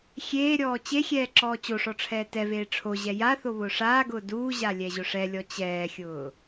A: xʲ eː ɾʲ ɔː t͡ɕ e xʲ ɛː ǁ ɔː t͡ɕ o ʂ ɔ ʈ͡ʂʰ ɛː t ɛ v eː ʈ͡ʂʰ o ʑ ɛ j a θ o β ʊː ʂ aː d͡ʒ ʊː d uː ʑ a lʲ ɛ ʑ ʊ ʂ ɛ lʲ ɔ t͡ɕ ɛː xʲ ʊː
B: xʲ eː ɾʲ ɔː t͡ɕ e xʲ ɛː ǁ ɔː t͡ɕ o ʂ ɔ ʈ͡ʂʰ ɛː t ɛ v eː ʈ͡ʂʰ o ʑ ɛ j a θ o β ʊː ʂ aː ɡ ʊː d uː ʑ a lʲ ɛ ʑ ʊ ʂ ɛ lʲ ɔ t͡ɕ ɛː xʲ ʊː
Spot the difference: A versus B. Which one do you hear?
B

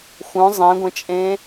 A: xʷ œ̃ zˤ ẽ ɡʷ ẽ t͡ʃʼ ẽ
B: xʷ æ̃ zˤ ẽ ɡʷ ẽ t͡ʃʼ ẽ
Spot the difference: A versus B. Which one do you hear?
A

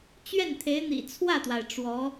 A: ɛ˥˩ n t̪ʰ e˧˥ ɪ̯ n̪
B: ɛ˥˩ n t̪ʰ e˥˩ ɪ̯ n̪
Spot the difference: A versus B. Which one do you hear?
A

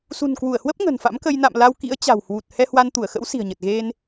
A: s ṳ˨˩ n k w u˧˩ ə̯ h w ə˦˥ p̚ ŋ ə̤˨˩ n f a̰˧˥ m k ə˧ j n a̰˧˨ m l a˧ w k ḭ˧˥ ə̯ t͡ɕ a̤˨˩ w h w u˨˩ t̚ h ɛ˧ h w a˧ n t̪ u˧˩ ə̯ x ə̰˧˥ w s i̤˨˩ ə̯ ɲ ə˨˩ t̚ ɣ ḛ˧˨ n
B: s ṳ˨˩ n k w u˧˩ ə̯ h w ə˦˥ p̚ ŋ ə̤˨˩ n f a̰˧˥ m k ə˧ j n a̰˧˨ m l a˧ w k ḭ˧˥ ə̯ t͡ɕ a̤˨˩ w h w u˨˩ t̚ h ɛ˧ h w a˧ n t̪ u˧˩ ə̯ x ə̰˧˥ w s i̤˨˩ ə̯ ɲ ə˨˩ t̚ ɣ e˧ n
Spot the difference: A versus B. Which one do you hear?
B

